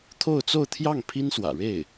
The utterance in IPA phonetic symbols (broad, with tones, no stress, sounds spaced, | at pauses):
t̪ʰ o˥˧ ʊ̯ t͡s o˥˧ ʊ̯ t̪ʰ j ɑ˥˩ ŋ pʰ i˥ n s w ä̰˨˩ ɻ e˥˩ ɪ̯